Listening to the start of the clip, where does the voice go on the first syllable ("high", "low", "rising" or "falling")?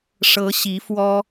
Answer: rising